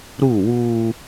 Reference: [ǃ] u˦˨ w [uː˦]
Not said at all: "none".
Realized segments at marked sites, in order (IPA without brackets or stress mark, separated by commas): ɾ, uː˦